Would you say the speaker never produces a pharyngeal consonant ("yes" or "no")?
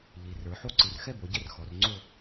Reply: no